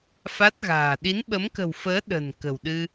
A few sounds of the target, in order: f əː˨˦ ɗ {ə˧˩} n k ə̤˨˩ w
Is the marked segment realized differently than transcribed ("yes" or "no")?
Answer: yes